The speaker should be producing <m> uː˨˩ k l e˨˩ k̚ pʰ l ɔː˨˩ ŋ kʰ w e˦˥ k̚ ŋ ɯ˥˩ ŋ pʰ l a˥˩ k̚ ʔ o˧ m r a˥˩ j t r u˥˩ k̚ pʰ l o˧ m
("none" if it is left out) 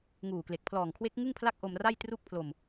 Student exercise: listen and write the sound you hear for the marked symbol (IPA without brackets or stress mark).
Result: ŋ